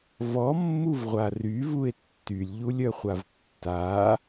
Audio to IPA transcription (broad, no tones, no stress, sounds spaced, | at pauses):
v ɔ mː u v ʁʷ a r y v u e̯ tː y lʲ ʎ u lʲ œ χʷ a v tː a